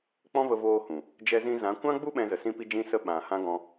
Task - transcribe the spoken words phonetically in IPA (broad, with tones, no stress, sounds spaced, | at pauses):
k͡p ɔ̃˦ v ə˧ v oː˧ h ũ˨ | d͡ʒ ɛ˧ z ĩ˧ z ã˨˦ kʷ ã˦ ɡ͡b u˦ ɓ ɛ̃˧ z ə˨ s ĩ˦ p i˦ d͡ʒ ĩ˦ s ə˦ ɓ ã˨ h ã˦ ɡ ɔ̃˧